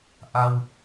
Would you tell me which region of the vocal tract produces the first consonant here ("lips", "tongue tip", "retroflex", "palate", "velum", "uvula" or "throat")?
throat